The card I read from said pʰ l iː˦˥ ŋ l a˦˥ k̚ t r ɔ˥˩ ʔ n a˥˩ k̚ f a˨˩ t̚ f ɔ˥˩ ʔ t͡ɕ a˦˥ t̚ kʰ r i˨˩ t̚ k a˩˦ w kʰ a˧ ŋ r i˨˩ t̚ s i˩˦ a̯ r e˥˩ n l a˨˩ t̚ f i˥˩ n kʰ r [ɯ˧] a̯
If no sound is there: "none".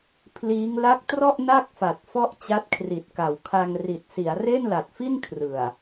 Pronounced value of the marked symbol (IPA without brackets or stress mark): ɯ˨˩